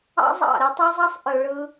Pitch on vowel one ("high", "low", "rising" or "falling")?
high